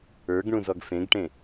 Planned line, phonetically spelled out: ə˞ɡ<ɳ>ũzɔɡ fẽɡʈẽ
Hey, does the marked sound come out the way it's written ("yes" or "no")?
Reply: yes